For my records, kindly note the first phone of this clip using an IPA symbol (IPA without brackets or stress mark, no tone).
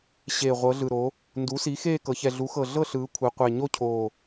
ɕ